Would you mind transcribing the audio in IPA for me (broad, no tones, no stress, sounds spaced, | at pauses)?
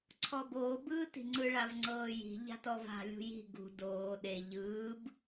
ǀʰ ɔ b oː b ɯː t i̤ ŋ͡ǀ ɯ ɭ a v ŋ͡ǀ ɤː j i̤ ʎ a̤ t ɔ v a̤ lʲ ṳ j i̤ ɡ ṳ d oː ɗ e ʎ ɯː b